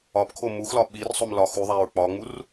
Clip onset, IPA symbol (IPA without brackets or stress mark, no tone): ɒ